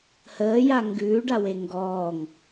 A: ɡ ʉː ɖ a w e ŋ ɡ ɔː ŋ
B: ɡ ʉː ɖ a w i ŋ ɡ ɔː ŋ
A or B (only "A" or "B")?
A